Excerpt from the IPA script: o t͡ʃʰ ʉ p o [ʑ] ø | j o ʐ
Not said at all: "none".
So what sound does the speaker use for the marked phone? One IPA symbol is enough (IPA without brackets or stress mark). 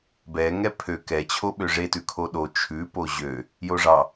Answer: ʑ